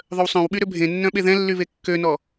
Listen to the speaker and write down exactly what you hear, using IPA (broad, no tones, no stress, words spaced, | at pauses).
ðˤœwsˤœ̃wɓy ɾøbʱẽnːœ̃ ɓeðɛ̃lːy βekːønɔ